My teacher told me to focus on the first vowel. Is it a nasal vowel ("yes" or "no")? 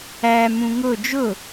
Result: no